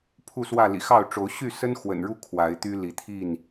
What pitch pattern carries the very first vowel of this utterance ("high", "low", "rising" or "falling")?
falling